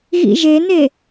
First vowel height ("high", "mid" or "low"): high